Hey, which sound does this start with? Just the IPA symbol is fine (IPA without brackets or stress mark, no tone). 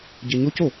ɟ